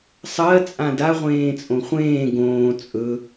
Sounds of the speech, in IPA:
sˤɜ t͡sʼãda ʁʷẽːt͡sʼõχʷẽː ɡõː t͡sʼɵ

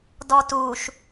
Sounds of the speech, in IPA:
dɔtuʃ

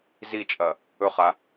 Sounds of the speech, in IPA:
zit͡ʃʼɐ | ɵχa

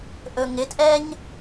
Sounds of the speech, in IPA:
ʔɵŋɪtʔɛɲ

